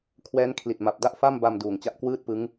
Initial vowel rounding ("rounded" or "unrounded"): unrounded